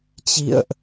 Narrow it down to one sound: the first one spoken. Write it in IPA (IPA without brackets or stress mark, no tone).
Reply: t͡ɕ